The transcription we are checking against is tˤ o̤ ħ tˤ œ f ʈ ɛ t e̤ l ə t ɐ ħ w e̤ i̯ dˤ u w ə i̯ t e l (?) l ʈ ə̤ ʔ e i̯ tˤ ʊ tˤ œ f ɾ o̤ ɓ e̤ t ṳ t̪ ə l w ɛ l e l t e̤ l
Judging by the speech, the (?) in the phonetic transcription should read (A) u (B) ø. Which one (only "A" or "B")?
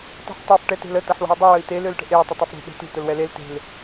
B